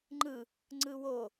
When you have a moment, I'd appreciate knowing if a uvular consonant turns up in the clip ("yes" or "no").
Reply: no